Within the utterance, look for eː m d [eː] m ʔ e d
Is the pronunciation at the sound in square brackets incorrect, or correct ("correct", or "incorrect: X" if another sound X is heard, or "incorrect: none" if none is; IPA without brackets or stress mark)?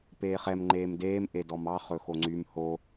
correct